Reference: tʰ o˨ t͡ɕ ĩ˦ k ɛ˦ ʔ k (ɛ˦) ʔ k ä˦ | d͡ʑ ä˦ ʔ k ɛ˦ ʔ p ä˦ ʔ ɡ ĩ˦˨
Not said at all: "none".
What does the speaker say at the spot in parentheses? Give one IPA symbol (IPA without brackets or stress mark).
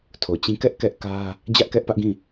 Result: ɛ˦